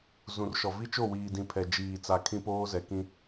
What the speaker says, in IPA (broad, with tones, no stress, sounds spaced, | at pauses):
z ũ˨ r ʃ ɔ˨ v i˦ t͡ʃ o˦˨ w iː˨ d ĩ˨ pʰ ɛ˨ d͡ʒ iː˨ t͡s a˨ kʰ ĩ˦ p oː˦ z ɛ˨ k ĩ˦